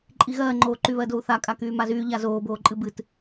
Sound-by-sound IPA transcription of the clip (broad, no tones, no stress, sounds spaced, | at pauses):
ǃʼ i ɣ ɜː ŋ͡ǃ oː ǃ y β ɜ d o u̯ θ a kʼ a k yː m a z yː ʎ a z oː b oː ǃʼ ɨ b ɨ t